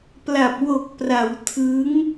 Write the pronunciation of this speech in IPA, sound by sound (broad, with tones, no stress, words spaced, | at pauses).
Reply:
pla˨˩p̚ wo˨˩k̚pra˩˦w tʰɯ˦˥ŋ